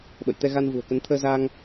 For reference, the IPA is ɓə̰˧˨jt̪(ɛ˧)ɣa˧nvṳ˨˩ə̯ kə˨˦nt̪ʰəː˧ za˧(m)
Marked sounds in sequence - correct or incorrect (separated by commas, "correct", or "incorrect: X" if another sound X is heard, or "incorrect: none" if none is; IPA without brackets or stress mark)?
correct, incorrect: ŋ